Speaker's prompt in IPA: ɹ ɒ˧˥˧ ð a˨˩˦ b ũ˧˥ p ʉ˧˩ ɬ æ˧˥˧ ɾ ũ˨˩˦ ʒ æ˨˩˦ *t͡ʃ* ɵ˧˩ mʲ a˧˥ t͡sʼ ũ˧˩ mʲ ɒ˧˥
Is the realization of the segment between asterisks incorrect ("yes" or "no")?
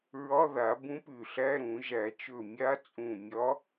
no